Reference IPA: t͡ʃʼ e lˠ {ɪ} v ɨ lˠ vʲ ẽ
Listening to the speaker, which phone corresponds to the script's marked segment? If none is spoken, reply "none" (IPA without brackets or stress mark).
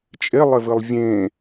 ɪ